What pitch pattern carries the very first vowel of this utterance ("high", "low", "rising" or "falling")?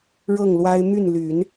falling